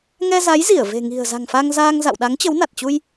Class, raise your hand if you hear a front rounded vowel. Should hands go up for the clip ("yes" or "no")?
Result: no